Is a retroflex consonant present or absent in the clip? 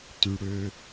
present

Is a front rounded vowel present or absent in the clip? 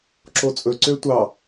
present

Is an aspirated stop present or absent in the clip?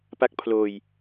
present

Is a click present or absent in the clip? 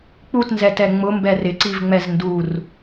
present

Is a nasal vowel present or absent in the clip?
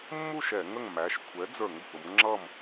absent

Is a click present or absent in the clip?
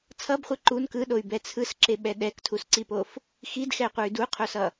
present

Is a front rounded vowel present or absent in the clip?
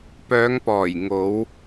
present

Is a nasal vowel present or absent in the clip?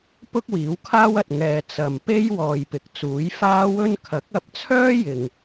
absent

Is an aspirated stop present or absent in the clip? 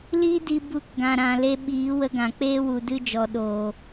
absent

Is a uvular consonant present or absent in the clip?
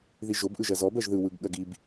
absent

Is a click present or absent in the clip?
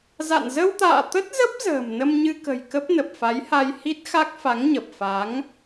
absent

